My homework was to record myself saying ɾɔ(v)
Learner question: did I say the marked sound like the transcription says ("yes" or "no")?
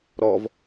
yes